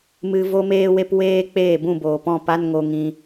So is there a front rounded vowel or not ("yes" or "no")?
no